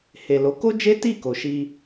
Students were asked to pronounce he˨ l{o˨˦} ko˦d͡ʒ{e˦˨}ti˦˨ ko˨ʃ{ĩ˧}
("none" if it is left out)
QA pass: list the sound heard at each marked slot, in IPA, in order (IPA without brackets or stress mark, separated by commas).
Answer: o˨˦, e˦, i˧